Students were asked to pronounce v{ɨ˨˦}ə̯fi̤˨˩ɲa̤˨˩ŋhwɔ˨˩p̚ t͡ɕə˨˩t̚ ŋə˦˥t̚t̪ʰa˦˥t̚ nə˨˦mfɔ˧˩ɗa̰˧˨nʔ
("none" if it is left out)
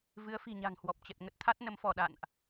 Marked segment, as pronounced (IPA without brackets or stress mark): ɨ˨˦